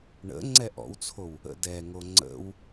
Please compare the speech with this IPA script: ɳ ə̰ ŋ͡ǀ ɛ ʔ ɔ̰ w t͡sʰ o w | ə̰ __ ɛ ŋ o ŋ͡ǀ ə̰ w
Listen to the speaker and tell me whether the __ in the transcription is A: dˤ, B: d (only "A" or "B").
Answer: B